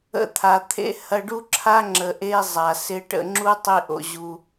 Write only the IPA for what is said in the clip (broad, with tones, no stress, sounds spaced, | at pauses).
ə̰˧ t̪ʰ a˨ t̪ʰ ḛ˦ h ɐ˧ ɖ u˦ ǁʰ a˦ ŋ͡ǁ ə˨ ʔ e˦ zˤ a˨ s ɪ˧ ʈ ə̰˧ ŋ͡ǁ u˦ tˤ i˦ ʔ o̰˧ ʑ u˧